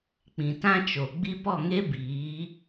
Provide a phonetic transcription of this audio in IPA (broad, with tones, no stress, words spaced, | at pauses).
k͡pĩ˨tã˦t͡ʃo˨ ɡ͡bi˧ pɔ˦˨ŋe˦biː˨˦